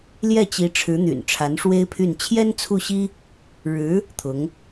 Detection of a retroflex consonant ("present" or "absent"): present